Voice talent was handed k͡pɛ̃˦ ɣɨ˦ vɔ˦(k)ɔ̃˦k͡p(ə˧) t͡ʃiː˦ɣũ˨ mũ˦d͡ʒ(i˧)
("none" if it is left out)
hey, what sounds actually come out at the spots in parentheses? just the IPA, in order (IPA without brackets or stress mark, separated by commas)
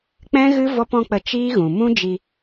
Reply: p, ə˧, i˧